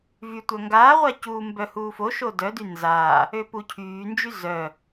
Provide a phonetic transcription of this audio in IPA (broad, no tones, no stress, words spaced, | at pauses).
vy tʷœŋɡaːʁʷa cuːmbœ huːfo ʃodœdy nzaː | øpucʰyːnd͡ʒy zœ